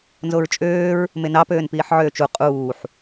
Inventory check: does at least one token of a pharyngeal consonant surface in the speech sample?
yes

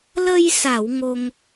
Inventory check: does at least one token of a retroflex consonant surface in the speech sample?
no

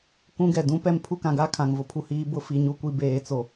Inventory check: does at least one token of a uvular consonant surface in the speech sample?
no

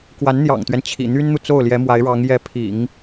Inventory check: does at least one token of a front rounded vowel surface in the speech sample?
yes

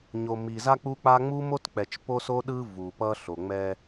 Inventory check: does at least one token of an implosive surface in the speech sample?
yes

